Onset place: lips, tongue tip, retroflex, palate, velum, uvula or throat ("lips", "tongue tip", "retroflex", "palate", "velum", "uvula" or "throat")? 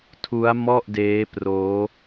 tongue tip